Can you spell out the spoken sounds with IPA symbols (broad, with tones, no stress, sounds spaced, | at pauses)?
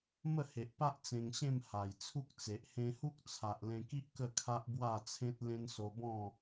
m ə˥˧ h e˨ ʔ p a˦ ʔ t͡s ẽ˧ ŋ ɕ ẽ˥˧ m h a˨˩ j t͡sʰ u˦ k̚ t͡s e˨ ʔ h ẽ˧ h u˦ k̚ t͡sʰ a˨ ʔ l ẽ˧ k i˦ ʔ k ə˥˧ kʰ a˦ ʔ b w a˥˧ t͡sʰ ẽ˦ t̚ l ẽ˦ n s o˧ b ɔ̃˥˧